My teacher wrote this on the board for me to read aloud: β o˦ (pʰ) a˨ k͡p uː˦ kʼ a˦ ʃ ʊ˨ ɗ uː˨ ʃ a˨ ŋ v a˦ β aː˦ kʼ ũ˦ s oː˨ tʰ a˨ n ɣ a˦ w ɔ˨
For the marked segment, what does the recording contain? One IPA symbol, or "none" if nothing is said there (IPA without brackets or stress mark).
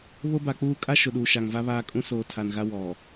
b